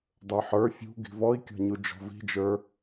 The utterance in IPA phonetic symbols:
dˤə˞ħə˞ fʲṳ ɡi̤vɔi̯kʲɔ̤ɲu d͡ʒɔ̤vi̤d͡ʒə˞

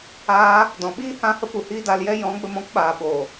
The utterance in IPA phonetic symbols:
aː˧ | dɔ̃˨ɓiː˦ hã˧hə˧ pu˨hiː˦da˧ljɛ˦ jɔ̃˨˦ɡ͡bə˧mɔ̃˧kɓaː˨ ɓo˨

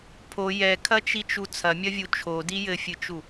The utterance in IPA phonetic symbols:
pʰo jɛkʰɐt͡ʃit͡ʃu t͡sʰɐmʲɐvʲu t͡ʃʰodi jɘfʲɨt͡ʃu

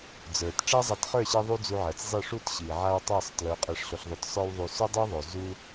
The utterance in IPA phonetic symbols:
d͡zə˞˨t ʈ͡ʂa˦zˤa˧tχə˞˦˨ɕi˧ ðˤu˦d͡zu˧ʕɜ˨t͡szˤi˦˨ ʂu˦t ɕi˨ʕa˦w tˤɜ˦˨sˤtlə˞˨˦ qʼɜ˧ʂɬo˧ɬðˤo˧t sˤə˞˦wðˤu˧ sø˦dˤø˦ðˤo˨ zu˦

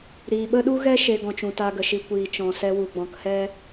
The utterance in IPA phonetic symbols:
ɾiː˨ɓə˦ɗu˦ɣɛ˦ ʃe˧ɡɔ̃˨t͡ʃũ˨ ta˧ɡə˨ʃi˨ kʷiː˨t͡ʃɔ̃˨sɛ˧ wu˨ɡ͡bɔ̃˨˦khɛ˦

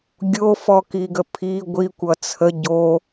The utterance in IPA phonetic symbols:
ɡʲofɔkiɡə pʰi ɡʷikʷʌ t͡sʰə ɟo

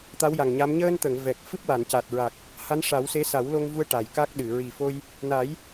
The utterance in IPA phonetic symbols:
t̪a˧˥wja˨˩ŋ ɲa˧˥m ɲəː˧nt̪ə˨˩˨ŋ vɛ˨˩k̚ fɨ˦˥p̚wa˨˩˨nca˨˩t̚ɹa˨˩k̚ | ha˧˥nʂa˨˩˦wse˧˥ sa˨˩˦wlo˧ŋvu˧ə̯ ʈa˨˩jka˦˥k̚ɗɨ˨˩˨ ɹi˨˩fo˧j | na˨˩˦j

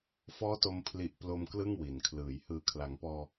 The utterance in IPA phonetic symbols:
fɔː˦˥to˧m pʰli˨˩ʔ plo˧m klɯ˥˩ŋwi˩˦nkʰlɯː˩˦j hɯː˩˦kʰla˩˦ŋpɔː˧

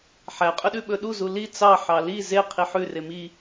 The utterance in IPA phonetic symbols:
ħæqʼɵɗʉ ɓɵɗuzu li t͡sɑ ħɑli ze qʰiħʉre mi

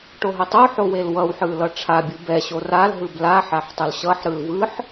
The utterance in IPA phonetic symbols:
ʈoɦotˤoħo welwʌwħɯ lʌʈ͡ʂʰabʲu bɛɕo ralɦɯb la ħaħtˤolɕʌħɾɯl vɯħ

